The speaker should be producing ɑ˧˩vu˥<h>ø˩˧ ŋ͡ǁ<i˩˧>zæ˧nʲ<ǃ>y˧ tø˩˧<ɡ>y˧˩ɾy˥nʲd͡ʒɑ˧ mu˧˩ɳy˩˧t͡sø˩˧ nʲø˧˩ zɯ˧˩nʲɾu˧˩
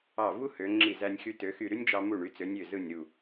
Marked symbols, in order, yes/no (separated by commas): yes, no, no, no